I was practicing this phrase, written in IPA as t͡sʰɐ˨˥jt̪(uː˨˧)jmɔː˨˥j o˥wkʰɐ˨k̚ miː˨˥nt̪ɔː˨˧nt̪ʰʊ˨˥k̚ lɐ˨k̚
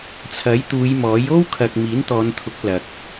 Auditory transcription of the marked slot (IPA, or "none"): uː˨˧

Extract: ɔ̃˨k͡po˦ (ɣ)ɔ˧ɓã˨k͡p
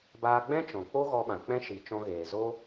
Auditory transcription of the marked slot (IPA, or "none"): ɣ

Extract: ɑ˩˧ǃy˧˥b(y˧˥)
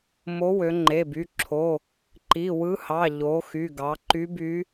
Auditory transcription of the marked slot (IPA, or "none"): y˧˥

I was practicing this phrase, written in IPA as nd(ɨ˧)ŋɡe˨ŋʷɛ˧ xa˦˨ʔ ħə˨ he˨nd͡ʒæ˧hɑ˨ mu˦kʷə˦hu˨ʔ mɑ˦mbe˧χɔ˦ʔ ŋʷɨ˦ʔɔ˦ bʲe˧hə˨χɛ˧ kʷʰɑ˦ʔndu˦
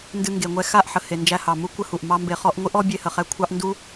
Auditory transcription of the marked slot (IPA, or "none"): ɨ˧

